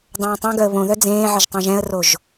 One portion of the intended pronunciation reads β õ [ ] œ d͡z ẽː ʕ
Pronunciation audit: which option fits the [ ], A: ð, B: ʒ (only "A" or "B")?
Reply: A